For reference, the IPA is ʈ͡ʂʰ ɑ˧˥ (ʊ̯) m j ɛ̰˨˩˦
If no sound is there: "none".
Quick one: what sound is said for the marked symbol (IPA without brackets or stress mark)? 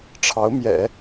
ʊ̯